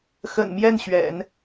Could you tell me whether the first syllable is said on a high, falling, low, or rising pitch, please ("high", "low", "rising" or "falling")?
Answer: low